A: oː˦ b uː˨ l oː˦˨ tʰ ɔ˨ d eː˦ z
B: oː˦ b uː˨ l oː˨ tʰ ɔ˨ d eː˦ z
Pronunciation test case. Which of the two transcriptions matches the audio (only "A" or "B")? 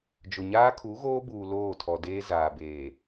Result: A